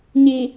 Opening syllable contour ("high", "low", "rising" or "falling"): low